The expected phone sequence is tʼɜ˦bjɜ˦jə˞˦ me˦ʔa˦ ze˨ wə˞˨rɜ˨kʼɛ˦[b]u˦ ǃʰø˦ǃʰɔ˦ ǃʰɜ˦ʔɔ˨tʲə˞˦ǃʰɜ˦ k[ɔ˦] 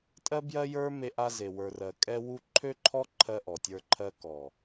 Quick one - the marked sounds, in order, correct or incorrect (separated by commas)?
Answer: incorrect, incorrect